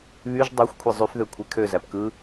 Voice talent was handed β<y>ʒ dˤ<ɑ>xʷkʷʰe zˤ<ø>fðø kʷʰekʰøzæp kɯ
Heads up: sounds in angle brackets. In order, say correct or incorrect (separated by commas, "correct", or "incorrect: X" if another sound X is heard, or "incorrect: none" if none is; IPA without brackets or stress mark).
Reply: correct, correct, incorrect: y